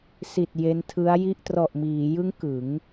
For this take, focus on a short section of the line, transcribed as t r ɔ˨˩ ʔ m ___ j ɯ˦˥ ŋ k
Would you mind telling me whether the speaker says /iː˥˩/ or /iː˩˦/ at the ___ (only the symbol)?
iː˩˦